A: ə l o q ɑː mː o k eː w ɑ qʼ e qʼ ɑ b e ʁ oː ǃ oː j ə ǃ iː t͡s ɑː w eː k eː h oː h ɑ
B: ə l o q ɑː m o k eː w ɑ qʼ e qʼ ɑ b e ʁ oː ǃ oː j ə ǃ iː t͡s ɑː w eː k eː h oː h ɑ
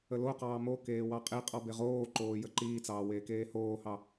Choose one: B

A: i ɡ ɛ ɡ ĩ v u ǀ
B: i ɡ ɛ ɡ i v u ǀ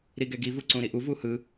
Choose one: B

